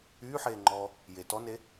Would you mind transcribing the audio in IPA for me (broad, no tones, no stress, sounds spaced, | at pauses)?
yː ħ eː ŋ͡ǃ ɔː | j e t ɔ n e